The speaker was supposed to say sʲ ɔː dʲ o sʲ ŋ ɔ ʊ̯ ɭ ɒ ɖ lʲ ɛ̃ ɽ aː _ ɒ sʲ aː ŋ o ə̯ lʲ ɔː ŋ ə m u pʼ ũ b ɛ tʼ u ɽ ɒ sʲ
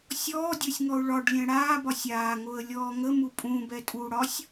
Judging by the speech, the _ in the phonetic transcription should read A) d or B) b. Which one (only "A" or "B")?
B